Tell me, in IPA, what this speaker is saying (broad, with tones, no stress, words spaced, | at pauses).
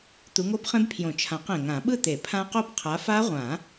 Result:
t̪u˨˦ŋo˦˥bχẽ˦˥bpʰjõ˨˩˦ t͡ʃʰã˨˩˦q ẽ˨˩ŋã˨˩˦ɓɯ˥˧t̪e˨˩˦ pʰã˦˥qo˥˧b qʰa˨˦fa˦˥ʁʷã˨˩˦